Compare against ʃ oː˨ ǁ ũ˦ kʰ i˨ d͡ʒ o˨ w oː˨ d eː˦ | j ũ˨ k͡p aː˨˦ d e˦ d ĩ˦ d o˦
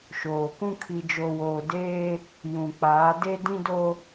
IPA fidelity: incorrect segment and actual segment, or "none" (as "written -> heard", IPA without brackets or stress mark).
ǁ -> k